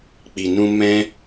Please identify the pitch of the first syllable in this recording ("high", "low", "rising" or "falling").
low